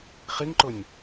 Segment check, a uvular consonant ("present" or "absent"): present